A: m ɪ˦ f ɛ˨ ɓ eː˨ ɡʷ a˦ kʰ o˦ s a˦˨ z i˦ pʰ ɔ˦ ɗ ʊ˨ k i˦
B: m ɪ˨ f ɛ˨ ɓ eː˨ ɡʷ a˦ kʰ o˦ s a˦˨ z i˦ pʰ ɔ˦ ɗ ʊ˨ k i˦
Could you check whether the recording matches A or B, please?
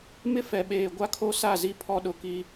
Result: A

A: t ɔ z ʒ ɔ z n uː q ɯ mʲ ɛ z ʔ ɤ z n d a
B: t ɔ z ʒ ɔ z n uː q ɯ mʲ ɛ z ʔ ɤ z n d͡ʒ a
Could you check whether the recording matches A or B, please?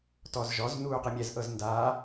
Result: A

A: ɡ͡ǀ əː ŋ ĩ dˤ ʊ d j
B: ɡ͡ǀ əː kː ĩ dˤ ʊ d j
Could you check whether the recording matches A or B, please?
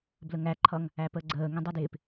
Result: A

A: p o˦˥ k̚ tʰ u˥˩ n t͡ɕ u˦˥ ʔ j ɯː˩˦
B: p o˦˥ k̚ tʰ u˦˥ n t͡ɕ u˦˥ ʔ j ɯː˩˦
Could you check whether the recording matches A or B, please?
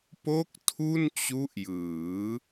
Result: A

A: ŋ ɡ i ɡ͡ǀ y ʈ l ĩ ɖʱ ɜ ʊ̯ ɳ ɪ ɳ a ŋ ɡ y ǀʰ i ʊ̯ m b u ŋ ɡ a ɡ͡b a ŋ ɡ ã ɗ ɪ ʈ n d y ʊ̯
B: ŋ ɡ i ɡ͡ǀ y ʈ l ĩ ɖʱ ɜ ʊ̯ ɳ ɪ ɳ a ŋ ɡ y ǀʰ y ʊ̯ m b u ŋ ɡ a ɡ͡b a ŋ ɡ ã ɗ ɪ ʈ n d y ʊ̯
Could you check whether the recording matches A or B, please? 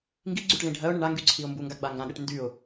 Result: A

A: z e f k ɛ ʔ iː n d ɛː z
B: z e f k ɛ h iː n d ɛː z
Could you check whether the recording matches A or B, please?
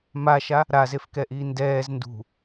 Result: A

